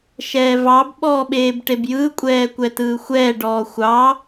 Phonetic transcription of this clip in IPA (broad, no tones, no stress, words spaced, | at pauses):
ʃɛːvɑb ɓɔːɓeːbʈebjɯː kʷʼɛːkʷɛtɯːxʷɛː ɖɔːxʷɑ